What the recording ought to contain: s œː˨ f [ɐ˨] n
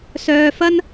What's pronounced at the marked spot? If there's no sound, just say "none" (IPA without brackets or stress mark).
ɐ˥